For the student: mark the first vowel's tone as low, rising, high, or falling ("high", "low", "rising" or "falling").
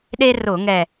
high